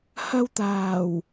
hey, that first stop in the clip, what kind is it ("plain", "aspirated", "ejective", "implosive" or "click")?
plain